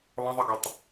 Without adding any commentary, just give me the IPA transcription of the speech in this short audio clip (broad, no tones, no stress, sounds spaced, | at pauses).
lˠ ə̃ ðˤ i ɡ ɘ tˤ